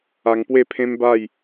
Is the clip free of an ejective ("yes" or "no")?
yes